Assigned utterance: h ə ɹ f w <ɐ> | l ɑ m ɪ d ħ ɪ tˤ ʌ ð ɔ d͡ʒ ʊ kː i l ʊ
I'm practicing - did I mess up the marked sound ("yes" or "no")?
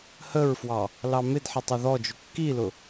yes